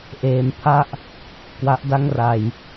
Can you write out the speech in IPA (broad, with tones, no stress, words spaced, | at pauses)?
ʔeː˩˦mpʰa˥˩ʔ | kwa˦˥ʔda˥˩ŋra˨˩j